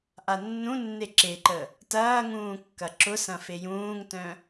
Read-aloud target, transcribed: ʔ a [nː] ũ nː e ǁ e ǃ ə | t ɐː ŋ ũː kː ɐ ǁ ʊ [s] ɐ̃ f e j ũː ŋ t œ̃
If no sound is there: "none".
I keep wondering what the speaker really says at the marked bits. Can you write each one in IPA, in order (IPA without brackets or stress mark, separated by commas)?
nː, s